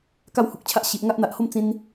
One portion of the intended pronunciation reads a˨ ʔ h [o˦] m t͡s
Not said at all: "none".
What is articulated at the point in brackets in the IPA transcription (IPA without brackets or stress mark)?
o˥˧